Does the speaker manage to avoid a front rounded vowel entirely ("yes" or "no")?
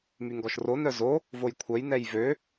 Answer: no